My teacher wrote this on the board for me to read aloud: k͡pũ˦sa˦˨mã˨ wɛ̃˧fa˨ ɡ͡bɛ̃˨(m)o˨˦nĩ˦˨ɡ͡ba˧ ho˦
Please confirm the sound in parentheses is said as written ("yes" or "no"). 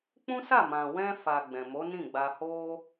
yes